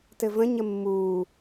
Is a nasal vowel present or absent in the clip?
present